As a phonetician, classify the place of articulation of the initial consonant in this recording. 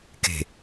velar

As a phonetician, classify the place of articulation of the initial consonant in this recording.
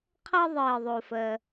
uvular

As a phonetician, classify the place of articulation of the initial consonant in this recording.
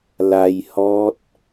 alveolar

